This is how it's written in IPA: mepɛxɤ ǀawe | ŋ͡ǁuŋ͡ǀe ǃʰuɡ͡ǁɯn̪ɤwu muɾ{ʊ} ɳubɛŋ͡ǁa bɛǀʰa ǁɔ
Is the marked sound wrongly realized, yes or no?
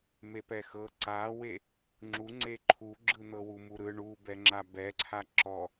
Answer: yes